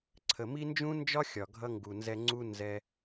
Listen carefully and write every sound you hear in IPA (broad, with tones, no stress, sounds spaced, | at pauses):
ǀʰ ə˨ m i˦ n d͡ʒ ũ˦ n d͡ʒ ɒ˦ xʲ ɒ˨ ɡʱ ʌ˧ ŋ ɡ u˨ n z ɛ˧ ŋ͡ǀ u˦ n z ɛ˧